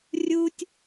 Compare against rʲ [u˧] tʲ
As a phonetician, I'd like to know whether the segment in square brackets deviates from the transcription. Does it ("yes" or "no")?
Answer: no